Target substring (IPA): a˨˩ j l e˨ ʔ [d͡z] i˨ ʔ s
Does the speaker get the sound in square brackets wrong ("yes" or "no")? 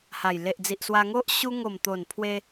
no